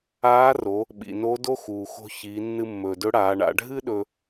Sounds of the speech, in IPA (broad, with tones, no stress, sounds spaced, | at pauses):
aː˧˥ r o˩˧ | ɓ ḭ˩ n o˧˥ d o˥ x uː˩ x o̤˧ ç i˩˧ nː ɨ˧ mː ɵː˩ d ɵ˧˥ ɽ aː˩˧ ɳ a̰˩˧ ɖʱ ɨ˥ ɗ ɵ˧